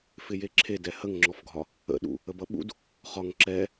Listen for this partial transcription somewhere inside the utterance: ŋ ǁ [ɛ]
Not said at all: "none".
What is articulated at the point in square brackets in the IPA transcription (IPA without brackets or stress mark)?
ɛ